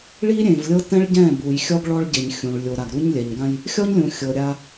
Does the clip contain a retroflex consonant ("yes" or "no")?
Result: yes